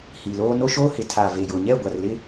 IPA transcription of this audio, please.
h i˨ l oː˦ n o˦ ʃ o˦ h ɪ˨ tʰ a˨ v e˨ j ʊ˨ ɲ ɛ˦˨ ɡʷ a˨ r l ɪ˦

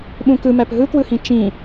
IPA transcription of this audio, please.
ɓ ũ k ɯ m æ p ɦ ɯ k w ɯ h ĩ t͡ʃ ĩ

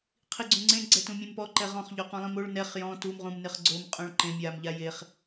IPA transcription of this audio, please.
qʰ i ɡ͡ǀ ũ ŋ͡ǀ ẽ ɡ͡ǀ ɛ t ũ mʲ ẽ m p ɔ ǃ ɛ ʁ ɔ̃ χ ʎ o q ũ lˠ ĩ m o ɭ n ɛ χ j ɔ̃ t u m ʁ ũ m n ɪ χ ɡ͡ǀ o m qʼ õ ɭ ǃ ẽ mʲ a m ʎ a j e χ

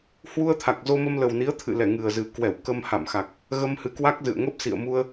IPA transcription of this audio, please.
h w u˧ ə̯ t̪ʰ a˨˩ k̚ z o˧ m ə˧ m l ə˨˩ w n i˨˦ ə̯ t̪ʰ ɨ̰˧˨ l ɛ˧˩ ŋ ɨ˨˩ ə̯ z ɨ˨˩ k w ɛ˧˩ w k ə˧ m h a̰˧˨ m x a˨˩ k̚ | ɣ ə˧ m h ɨ˨˦ k w a˦˥ k̚ z ɨ̰˧˨ ə̯ ŋ ə˦˥ p̚ s ḭ˧˨ ə̯ m u˧ ə̯

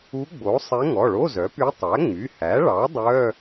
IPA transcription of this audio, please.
u˧˥ ɡ͡b o˩˥ sˤ ɛ˧˥ ŋ ɔ˩˧˩ ɭ o˧˥˧ z œ˩˥ p y˧˥ tˤ æ˩˥ ŋ͡m y˩˧˩ h æ˩˥ ɭ ɑ˩˥ dˤ œ˧˥˧

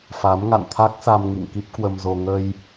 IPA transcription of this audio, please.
f a˨˦ m ŋ a̰˧˨ n t̪ʰ a˦˥ k̚ s a˧ m ŋ ḭ˧˨ ŋ k i˦˥ p̚ k w ə˧ m z o˧ ŋ ə˧ j

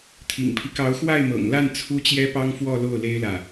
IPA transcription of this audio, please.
t̪ʰ ḭ˨˩ ŋ pʰ i˦ k ɑ˧˥ ʊ̯ x w a˥˩ ɪ̯ m ɤ̰˨˩ ŋ l a˥˩ n t͡sʰ u˥ t͡ɕ j ɛ˥ p ɑ˥ ŋ f w ɔ˥˧ l o˥˩ ʊ̯ l e˥ ɪ̯ l ä˨

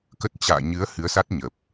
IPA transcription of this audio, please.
k ə˦˥ t̚ t͡ɕ a̰ː˧˨ ɲ ɨ˨˦ ə̯ h ɨ˨˦ ə̯ s a˦˥ t̚ ɲ ə˨˩ p̚

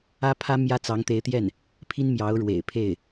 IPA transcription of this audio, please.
ä˥ pʰ ä˥ m j ä˥ t͡s ɑ˧˥ ŋ t̪ e˧˥ ɪ̯ t̪ j ɛ˥˩ n | pʰ i˥ n m j ɑ˧˥ ʊ̯ ɻ w ḛ˨˩ ɪ̯ pʰ e˥˩ ɪ̯

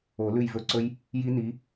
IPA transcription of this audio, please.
o˨˩˦ l ʉ˦˨ j v ɵ˦˨ ǀ ɵ˦˥ j | j i˦˥ n i˨˥

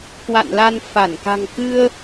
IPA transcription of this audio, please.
k w a̰˧˨ n l a˧ n f a˧˩ n k a̤˨˩ ŋ k ɨ˧ ə̯

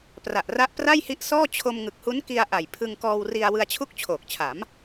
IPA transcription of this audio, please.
p r a˨˩ ʔ r a˦˥ ʔ p r a˥˩ j h i˦˥ ʔ s ɔː˥˩ t͡ɕʰ o˧ m ŋ ɯ˨˩ k̚ h u˦˥ n k i˧ a̯ ʔ a˨˩ j pʰ ɯ˧ ŋ k ɔː˧ w r i˧ a̯ w ɯ˧ a̯ t͡ɕʰ u˥˩ k̚ t͡ɕʰ oː˨˩ k̚ t͡ɕʰ a˩˦ m

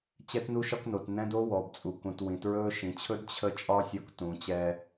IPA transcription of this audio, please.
t͡ɕ ɛ˦ t n u˦ ʃ ɒ˦ k n o˨ t n ɛ̃˦ d o˦ w ɔ˨ b t͡sʼ u˨ k ũ˨ t w ĩ˨ t ɹ ɵː˦ ʃ ĩ˨ t͡ɕʰ ɵ˦ d t͡ɕʰ ə˦ t͡ʃʼ ɒ˦ sʲ ɔ˧ k t ũ˨ t͡ɕ ɛ˧

